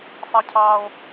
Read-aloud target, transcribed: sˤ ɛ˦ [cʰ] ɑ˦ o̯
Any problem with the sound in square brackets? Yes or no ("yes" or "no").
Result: no